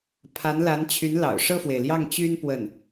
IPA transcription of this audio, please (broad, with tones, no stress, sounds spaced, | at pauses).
pʰ a˧˥ n l a˧˥ n t͡ɕʰ y˧˥ n l ɑ̰˨˩ ʊ̯ ʂ ɤ˥˩ f w e˩ ɪ̯ l j ɑ˥˩ ŋ t͡ɕ y˥ n p w ə˥˩ n